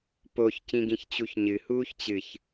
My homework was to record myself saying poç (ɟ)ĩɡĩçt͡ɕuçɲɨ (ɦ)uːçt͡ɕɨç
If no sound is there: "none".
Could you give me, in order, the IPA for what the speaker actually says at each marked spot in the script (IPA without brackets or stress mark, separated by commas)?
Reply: c, h